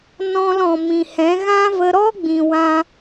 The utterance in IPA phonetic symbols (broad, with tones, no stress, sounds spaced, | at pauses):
n ɔ̃˧ l ɔ̃˨ m ĩ˨ h ɛ̃˨˦ ɣ ã˦ v ə˧ ɾ ɔ˦ ɡ͡b ĩ˨ w ã˧